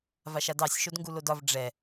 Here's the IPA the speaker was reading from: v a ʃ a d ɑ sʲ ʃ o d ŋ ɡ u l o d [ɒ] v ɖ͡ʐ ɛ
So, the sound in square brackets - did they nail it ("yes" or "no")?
yes